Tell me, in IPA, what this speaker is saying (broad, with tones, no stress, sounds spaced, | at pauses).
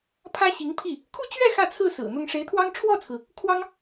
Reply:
pʰ ä˥ ɕ i˧˥ ŋ pʰ i˥˩ | kʰ u˥˧ t͡ɕ ɥ ɛ˥˧ x ä˥˧ t͡sʰ ɹ̩˥˩ s ɹ̩˨˩ n̪ ʊ˥ ŋ ʂ e˧˥ ɪ̯ t̪ʰ w ɑ˥ ŋ ʈ͡ʂʰ w ɔ˥˩ t͡sʰ ɹ̩˩ | kʰ w ɑ˥ ŋ